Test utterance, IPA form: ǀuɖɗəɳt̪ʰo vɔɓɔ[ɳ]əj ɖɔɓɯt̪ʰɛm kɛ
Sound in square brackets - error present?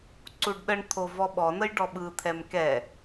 yes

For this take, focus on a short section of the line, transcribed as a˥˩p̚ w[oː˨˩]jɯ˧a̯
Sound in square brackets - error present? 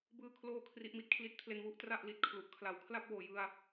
no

